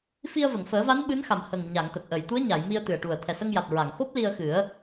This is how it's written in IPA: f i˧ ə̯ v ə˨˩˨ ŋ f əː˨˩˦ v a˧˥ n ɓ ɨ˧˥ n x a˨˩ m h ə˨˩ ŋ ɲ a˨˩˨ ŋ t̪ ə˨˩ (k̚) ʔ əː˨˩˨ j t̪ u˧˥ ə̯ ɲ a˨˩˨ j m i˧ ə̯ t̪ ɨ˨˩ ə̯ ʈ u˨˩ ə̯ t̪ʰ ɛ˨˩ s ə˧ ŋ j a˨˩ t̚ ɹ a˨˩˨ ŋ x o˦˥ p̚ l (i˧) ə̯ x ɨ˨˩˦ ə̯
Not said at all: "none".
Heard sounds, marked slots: k̚, i˧

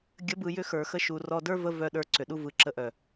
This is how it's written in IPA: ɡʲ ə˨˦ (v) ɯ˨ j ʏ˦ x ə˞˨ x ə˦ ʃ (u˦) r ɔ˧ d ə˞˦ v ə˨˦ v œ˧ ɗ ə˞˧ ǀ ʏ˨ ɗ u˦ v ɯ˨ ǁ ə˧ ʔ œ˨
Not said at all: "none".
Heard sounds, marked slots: b, u˨

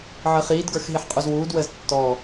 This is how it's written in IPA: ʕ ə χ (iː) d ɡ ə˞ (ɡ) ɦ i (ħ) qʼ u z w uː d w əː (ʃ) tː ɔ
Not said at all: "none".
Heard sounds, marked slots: iː, x, ħ, z

